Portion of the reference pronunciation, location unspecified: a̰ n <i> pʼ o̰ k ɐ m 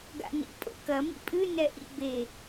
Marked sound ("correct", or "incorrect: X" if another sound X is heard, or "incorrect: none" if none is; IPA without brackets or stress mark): incorrect: ḭ